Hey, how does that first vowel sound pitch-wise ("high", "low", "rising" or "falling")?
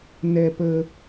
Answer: low